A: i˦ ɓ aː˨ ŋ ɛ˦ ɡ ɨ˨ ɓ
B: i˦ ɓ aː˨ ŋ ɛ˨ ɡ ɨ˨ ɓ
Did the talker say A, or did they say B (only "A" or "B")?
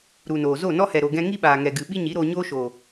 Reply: B